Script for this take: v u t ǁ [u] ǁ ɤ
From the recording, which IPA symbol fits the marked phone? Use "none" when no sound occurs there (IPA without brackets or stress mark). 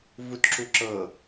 u